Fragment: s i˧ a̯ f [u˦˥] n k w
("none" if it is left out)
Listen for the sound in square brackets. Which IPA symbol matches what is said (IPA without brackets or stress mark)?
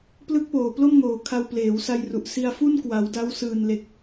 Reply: u˥˩